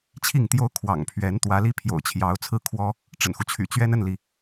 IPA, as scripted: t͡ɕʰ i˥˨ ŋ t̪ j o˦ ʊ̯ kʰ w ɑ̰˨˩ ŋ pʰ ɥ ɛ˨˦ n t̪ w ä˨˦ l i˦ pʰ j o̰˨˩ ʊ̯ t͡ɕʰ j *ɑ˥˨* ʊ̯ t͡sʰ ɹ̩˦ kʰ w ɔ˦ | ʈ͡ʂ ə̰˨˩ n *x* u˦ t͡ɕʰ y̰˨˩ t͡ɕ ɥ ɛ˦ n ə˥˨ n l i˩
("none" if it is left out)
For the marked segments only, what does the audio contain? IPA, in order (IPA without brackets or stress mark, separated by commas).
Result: ɑ˨˦, x